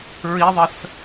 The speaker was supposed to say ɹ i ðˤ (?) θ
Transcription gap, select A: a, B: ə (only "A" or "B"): B